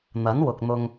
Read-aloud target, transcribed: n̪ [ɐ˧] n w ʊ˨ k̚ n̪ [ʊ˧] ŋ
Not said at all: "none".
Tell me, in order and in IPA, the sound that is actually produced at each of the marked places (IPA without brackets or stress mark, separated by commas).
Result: ɐ˨˥, ʊ˧